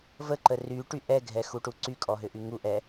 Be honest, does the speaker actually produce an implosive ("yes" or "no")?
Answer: no